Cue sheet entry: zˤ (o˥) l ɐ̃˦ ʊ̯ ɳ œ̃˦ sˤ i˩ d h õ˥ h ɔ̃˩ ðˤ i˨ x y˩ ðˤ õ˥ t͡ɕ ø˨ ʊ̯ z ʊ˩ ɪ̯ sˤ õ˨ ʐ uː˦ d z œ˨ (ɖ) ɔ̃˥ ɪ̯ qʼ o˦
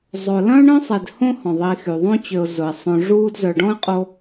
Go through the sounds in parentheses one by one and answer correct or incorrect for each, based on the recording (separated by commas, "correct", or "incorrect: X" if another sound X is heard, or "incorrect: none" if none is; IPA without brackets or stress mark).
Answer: incorrect: o˩, correct